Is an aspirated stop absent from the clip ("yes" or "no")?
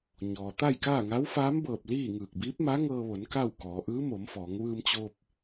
yes